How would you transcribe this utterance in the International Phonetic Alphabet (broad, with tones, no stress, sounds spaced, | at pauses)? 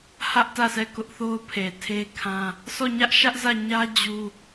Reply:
h ä˦ ʔ t ä˦˨ s ɛ˦˨ k ʊ˦ ʔ θ o˦ ʊ̯ pʰ e˨ tʰ e˦ kʰ ã˦ | sʰ ɔ˦˨ ɲ ä˦ ʔ ʃ ä˦ ʔ z ä˦˨ ɲ ä˦ d͡ʑ u˦